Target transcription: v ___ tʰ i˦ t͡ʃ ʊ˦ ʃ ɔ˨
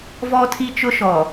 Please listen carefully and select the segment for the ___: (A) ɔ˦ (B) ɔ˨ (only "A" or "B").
A